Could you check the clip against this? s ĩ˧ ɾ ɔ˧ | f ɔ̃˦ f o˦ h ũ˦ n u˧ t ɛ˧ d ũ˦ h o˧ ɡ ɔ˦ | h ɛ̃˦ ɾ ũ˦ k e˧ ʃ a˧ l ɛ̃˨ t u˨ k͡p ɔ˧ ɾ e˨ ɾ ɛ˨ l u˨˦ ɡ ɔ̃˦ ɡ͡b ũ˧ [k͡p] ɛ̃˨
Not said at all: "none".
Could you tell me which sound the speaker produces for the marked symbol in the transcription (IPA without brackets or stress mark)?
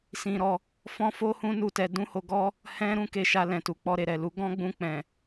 k͡p